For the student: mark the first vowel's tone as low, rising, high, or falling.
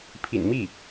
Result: low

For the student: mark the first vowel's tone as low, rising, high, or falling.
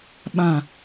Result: low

